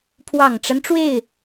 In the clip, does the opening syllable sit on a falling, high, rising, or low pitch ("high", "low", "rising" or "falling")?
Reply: low